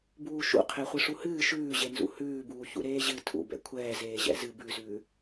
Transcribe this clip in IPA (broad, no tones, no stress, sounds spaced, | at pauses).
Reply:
b uː ʃ ṵ qʰ ɛ χʷ ɨ ʂ u h ɨː ʃ ʉː ʑ e n z ṵ h ʉː b uː ç ṵ ɾ eː ʑ ɨ tʰ ṵ b ɛ̰ kʷʰ ɛː z eː ʑ ɛ̰ z ɨ b ʉ z ʉː